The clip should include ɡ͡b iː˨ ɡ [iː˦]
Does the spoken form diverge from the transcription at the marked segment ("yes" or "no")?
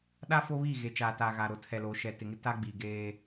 yes